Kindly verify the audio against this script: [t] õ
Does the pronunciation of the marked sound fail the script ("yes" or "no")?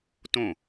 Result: no